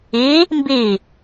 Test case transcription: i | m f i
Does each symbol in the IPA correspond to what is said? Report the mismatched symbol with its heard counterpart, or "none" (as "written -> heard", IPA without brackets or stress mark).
f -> b